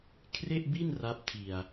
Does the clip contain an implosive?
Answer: no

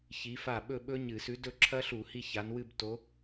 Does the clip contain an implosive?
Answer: yes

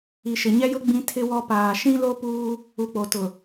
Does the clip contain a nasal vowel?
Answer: yes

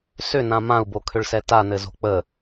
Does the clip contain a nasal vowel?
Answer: yes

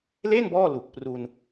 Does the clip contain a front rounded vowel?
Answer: no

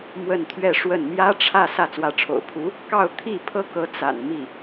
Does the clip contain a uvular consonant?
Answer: no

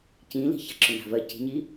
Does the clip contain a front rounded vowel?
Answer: yes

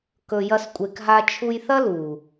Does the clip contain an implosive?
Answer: no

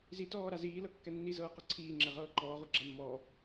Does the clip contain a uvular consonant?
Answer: yes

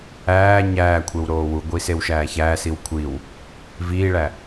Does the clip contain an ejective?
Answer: no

